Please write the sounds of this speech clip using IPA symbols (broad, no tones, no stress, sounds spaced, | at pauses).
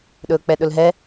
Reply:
ɗ ɵː k͡p ɛ ɗ ɵ l ɦ ɛ